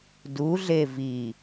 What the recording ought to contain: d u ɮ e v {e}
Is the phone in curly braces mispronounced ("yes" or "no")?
yes